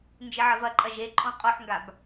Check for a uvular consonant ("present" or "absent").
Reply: present